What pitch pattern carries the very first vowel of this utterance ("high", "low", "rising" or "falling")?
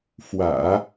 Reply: low